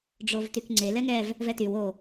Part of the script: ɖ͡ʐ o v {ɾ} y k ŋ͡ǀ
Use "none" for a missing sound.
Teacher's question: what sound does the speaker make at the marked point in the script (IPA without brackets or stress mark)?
t